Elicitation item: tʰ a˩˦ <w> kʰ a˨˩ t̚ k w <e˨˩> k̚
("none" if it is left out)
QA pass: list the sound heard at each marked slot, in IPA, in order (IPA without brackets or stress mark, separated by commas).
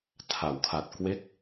w, e˦˥